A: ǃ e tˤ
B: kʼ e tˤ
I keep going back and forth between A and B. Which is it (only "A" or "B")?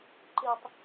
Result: A